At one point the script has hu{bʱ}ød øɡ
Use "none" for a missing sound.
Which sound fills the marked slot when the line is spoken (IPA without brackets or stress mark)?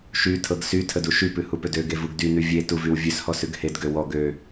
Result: p